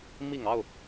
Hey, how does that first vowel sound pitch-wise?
low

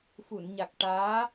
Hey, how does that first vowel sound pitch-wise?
low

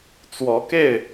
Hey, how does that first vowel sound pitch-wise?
rising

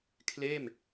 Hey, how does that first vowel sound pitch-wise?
falling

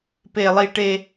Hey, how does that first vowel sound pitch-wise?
high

